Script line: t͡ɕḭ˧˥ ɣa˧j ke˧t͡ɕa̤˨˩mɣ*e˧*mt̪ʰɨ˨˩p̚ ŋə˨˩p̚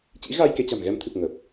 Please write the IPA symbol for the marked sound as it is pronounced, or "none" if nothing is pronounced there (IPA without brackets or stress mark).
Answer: ɛ˧